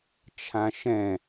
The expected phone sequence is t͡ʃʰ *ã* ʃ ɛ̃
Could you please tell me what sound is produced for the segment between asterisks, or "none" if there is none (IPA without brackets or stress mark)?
ã